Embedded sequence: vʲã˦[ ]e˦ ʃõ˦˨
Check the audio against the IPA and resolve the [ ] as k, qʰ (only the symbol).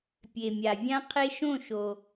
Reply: qʰ